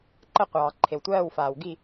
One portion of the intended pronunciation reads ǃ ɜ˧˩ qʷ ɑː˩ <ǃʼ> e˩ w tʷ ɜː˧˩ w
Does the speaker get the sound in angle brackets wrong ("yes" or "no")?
yes